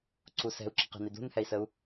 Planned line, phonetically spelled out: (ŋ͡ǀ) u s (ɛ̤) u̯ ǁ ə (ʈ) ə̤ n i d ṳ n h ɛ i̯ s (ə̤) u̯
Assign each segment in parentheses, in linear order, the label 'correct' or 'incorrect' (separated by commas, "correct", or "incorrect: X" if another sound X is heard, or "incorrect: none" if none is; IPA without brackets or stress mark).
incorrect: ǀ, correct, incorrect: q, incorrect: ə